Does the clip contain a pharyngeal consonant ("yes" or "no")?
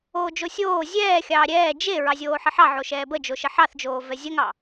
yes